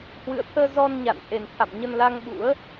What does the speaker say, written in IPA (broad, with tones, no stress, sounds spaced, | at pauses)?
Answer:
h w ɨ̰˧˨ ə̯ t̪ʰ əː˧ z ɔ˧ n ɲ a̰˧˨ n ʔ e˨˩ n t̪ʰ a̰˧˨ m ɲ ə˧ n l a˧ ŋ ɓ ṵ˧˥ ə̯